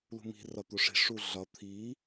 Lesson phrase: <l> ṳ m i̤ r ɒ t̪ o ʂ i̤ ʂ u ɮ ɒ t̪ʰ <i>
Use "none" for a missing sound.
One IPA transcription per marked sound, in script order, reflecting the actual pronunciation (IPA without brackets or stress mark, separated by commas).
l, i